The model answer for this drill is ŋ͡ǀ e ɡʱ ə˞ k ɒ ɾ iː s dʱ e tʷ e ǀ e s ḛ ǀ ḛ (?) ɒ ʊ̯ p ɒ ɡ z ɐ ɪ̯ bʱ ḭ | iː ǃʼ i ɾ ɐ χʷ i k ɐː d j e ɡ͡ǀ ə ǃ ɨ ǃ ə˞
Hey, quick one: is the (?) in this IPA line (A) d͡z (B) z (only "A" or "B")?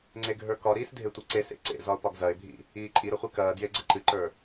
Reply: B